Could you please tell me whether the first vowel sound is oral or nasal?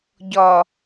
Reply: oral